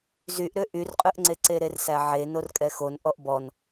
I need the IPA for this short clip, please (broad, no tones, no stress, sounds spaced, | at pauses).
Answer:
z y ʔ ɾ ø ʔ y r qʼ ø ʔ ŋ͡ǀ e ǀ e ɾ e r s æ ʕ e n o r kʼ ɛ x o n ʔ ɔ ʔ b ɔ n